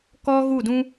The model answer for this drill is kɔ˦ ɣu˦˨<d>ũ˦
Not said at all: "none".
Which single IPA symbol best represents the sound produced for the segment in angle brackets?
d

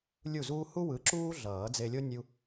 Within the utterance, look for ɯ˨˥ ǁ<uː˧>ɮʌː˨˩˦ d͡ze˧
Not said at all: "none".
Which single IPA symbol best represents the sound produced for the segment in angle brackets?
uː˥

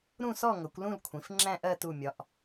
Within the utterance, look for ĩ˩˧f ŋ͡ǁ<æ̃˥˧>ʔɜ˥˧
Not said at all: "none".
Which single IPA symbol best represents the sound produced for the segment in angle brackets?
æ̃˥˧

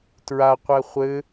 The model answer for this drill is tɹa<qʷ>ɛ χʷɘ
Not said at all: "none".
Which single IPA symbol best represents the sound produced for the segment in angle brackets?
qʷ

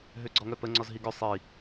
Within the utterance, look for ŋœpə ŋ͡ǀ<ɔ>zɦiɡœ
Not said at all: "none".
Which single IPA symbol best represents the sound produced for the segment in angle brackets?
ɔ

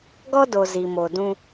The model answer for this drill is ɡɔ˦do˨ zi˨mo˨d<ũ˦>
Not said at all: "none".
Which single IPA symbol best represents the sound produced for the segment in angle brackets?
ũ˦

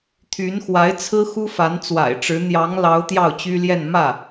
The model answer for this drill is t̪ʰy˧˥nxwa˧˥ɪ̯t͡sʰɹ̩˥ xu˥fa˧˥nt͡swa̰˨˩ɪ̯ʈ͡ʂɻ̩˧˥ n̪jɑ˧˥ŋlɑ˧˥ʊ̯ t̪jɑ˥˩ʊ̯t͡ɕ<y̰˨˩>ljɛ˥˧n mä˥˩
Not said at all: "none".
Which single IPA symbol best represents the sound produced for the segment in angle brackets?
y˥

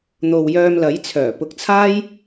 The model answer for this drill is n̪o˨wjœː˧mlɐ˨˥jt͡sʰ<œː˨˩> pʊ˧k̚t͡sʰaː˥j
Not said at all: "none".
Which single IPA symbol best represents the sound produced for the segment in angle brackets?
œː˨˩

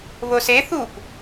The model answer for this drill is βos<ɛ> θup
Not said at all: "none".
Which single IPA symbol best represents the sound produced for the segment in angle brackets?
e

